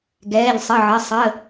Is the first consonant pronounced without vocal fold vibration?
no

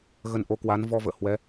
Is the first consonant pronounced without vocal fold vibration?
no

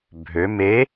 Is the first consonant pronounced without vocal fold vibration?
no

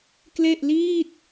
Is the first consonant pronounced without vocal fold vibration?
yes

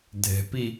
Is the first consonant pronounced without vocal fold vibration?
no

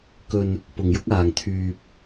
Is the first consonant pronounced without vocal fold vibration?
yes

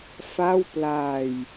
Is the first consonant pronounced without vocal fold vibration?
yes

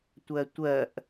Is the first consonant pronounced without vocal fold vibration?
yes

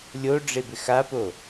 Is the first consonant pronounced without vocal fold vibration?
no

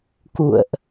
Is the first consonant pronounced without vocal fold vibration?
yes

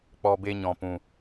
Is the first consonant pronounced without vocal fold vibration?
yes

